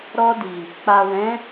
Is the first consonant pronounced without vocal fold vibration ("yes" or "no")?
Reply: no